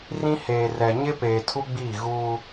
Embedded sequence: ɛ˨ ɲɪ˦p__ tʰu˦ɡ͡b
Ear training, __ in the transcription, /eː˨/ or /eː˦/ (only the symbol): eː˨